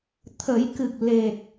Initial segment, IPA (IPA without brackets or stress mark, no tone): t̪ʰ